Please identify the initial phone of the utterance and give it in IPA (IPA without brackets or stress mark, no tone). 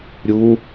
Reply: ɾʲ